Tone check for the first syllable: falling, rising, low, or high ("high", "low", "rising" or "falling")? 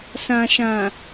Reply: low